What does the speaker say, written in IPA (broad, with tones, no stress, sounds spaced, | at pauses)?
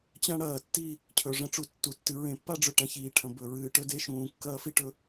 t͡ɕ ã˦ ɽ ɐː˨ tː i˦˨ | cʰ ɵ˨ ʐ ɐ̃˦ ʈ͡ʂ u˨ tː u˨ tː ɨ˨ ɹ ẽ˨ pː a˦ ɖ͡ʐ ɵ˨ ʈ ã˦ ç iː˨ ʈʰ ɐ̃˨ b ɵ˨ ɹ ɨː˨ ʈ ɵ˦ d e˦ ʃ ũː˨ kː ɐː˦ f i˦ ʈ ɵ˦